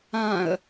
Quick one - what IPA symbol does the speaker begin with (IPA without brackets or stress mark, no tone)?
ã